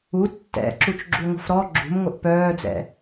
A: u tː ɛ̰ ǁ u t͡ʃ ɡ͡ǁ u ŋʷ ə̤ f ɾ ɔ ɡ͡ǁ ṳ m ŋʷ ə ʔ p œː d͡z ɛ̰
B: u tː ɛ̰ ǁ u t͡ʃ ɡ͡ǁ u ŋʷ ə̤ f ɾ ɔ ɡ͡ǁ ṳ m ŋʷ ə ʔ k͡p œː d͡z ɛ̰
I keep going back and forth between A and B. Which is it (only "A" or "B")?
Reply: A